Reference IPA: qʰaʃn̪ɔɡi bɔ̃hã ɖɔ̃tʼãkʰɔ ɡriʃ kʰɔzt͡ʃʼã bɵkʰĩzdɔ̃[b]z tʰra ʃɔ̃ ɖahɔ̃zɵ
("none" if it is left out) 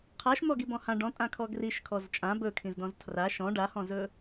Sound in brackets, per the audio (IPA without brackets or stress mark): none